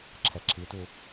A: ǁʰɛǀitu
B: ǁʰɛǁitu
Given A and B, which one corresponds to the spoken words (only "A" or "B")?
B